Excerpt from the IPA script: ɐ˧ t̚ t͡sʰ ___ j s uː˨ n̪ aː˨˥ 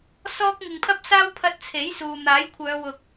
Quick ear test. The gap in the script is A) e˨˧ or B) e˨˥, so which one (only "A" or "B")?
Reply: B